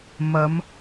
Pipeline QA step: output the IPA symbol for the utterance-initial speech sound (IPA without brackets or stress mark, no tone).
m